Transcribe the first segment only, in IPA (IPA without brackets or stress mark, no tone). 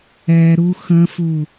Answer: ɛ